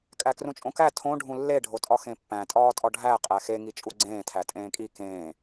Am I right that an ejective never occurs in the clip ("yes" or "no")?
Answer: no